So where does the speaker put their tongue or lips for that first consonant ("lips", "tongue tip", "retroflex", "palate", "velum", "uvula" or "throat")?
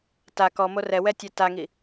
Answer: tongue tip